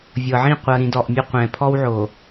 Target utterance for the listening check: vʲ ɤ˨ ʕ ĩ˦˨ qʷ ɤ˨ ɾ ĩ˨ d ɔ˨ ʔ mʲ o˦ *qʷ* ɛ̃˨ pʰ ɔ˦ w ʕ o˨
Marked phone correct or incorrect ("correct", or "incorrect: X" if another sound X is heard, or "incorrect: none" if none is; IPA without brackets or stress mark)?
correct